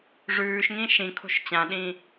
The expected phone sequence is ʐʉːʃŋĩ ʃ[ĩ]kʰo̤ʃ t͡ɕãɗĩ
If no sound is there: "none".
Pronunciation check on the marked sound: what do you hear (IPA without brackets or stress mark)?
ĩ